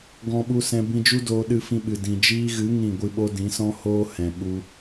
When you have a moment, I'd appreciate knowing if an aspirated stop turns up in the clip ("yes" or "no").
no